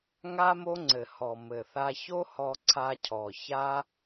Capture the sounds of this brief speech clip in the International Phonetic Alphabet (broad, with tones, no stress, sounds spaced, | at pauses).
ŋ a˦ m o˦ ŋ͡ǀ ɘ˨ h ɔ˨ m ɘ˨ θ a˧ ç o˦ h ɔ˧ ǀʰ a˧ cʰ ɔ˨ ç a˦